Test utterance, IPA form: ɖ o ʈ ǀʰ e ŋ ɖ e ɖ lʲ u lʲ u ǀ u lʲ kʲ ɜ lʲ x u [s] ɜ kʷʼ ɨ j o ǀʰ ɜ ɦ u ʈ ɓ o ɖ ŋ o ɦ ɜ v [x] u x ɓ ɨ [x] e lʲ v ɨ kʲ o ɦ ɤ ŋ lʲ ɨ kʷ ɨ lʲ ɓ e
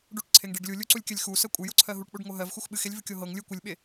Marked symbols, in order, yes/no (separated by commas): yes, yes, yes